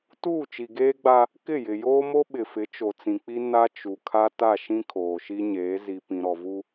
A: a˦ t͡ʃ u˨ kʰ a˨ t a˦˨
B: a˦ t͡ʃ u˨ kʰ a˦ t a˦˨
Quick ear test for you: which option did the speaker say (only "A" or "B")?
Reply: B